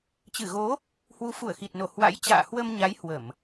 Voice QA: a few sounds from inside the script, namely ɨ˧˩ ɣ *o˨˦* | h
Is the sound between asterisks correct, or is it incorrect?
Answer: correct